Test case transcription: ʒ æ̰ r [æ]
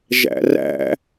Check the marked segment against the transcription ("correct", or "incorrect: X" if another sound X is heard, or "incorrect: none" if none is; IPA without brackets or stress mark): incorrect: æ̰